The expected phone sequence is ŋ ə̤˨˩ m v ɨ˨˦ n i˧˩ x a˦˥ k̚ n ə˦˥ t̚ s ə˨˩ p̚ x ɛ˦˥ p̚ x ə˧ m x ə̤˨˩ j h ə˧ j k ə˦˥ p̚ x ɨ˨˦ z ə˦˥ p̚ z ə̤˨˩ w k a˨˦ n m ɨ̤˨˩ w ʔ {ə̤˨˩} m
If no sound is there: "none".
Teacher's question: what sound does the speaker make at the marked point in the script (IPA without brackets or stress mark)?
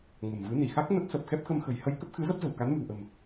ə̤˨˩